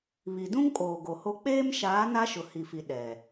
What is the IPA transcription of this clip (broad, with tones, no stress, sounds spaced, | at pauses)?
β i˨ d ũ˦ ŋ kʼ oː˨ ɡ o˨ h o˦ k͡p eː˦ m ʃ aː˨˦ n a˦ ʃ ʊ˨ h i˨ f i˨ ɗ ɛ˨